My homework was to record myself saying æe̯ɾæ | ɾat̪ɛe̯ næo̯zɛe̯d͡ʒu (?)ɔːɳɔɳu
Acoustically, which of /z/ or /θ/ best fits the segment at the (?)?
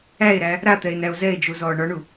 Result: z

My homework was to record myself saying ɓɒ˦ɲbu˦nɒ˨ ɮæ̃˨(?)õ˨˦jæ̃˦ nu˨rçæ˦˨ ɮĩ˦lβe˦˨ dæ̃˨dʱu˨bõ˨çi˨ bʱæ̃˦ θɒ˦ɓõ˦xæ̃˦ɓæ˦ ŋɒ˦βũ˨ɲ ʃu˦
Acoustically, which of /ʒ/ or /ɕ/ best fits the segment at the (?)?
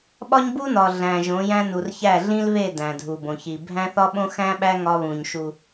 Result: ʒ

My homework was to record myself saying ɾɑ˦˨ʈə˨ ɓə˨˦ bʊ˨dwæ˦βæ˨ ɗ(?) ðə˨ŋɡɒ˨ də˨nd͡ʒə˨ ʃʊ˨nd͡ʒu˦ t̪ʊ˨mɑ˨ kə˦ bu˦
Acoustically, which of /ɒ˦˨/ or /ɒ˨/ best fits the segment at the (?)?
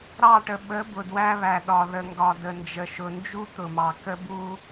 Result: ɒ˨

